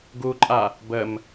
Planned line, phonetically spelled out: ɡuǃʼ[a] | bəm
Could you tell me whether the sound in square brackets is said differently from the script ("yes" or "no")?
no